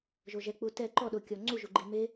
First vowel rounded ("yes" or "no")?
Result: yes